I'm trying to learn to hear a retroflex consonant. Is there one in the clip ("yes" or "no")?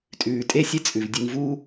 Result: no